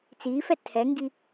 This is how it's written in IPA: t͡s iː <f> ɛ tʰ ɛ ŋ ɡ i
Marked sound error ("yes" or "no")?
no